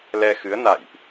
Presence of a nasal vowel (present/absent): absent